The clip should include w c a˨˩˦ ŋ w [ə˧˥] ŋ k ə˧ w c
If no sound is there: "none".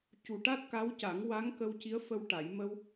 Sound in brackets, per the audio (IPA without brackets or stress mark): a˧˥